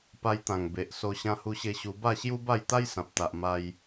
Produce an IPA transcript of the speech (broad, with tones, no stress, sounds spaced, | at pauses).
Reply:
p a˧ j t̪ ã˨˩ ŋ b e˨ ʔ s o˧ ɕ ã˧ h u˧ ɕ e˧ ɕ u˧ b a˥˧ ɕ j u˦ b a˥˧ j t̪ a˦ j s ã˨ p̚ t̪ a˨ ʔ m a˧ j